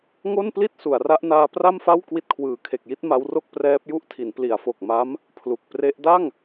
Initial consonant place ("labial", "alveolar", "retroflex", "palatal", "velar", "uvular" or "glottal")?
velar